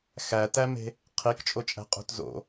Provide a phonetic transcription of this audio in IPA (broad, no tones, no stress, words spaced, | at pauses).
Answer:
xætæme̤ | qʰikt͡ʃʼot͡ʃʼæ̤qʼṳt zo̰